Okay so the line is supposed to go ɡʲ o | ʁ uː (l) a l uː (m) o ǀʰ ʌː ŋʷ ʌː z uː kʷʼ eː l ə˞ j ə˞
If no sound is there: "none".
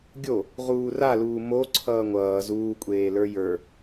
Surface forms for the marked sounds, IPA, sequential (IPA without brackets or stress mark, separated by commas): r, m